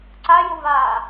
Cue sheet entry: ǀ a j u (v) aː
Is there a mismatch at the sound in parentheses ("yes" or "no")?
no